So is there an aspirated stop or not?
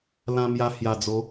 no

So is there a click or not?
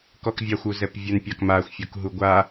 no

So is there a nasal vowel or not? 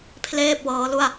no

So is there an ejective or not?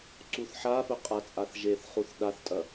yes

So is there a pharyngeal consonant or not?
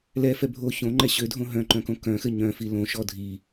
no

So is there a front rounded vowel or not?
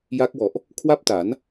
no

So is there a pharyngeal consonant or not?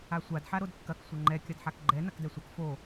yes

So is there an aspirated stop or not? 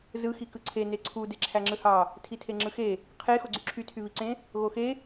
yes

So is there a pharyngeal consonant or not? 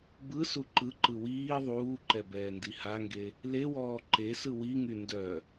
no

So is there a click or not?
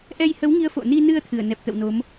no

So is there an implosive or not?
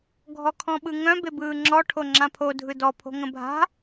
yes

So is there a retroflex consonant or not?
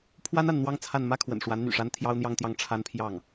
yes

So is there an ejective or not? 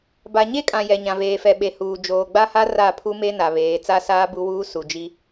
yes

